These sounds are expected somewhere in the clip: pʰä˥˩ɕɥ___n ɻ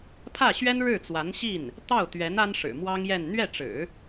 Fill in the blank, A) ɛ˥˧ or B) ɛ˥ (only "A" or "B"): B